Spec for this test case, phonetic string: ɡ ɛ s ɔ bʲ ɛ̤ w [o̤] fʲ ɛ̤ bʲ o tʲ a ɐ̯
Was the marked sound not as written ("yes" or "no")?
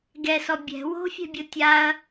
no